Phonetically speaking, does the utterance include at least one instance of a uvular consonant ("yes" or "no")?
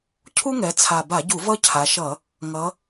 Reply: no